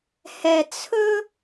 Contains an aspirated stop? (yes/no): yes